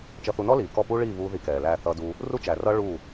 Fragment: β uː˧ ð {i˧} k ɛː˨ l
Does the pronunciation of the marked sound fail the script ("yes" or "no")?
no